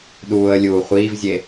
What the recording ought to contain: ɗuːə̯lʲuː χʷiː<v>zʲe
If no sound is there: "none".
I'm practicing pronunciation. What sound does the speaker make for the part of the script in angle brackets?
v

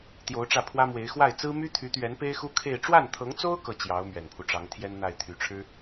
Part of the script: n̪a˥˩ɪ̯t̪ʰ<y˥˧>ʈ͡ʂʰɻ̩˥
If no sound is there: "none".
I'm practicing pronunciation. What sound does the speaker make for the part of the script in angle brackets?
y˨˩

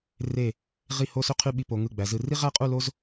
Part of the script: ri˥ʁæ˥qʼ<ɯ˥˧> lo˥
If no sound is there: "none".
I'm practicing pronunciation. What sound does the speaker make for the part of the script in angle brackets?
u˥˧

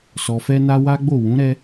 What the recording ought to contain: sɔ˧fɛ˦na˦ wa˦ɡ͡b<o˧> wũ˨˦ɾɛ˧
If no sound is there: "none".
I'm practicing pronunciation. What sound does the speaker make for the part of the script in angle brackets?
o˦˨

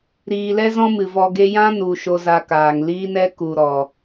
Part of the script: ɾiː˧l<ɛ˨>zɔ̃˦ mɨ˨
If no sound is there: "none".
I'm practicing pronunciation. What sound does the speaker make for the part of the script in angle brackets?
ɛ˦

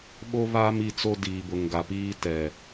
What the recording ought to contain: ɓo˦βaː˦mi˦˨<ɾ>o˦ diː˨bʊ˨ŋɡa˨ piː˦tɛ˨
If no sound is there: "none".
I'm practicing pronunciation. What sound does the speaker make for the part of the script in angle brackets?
t͡s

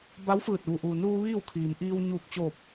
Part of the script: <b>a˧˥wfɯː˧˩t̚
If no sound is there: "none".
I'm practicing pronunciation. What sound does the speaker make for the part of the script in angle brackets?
b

